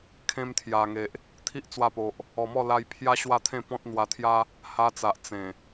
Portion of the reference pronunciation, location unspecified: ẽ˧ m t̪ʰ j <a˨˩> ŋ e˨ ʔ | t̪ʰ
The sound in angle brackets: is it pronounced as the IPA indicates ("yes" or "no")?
yes